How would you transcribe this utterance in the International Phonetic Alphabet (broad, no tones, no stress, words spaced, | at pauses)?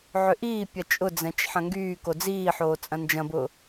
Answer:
ʕʏʔiːpʲɐ t͡ʃʼʊd͡zɛ̃t͡ʃ ħɐ̃ŋɡyːko d͡ziːħoː t͡sʼɐ̃nd͡ʒɐ̃bʊ